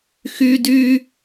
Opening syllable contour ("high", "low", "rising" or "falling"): high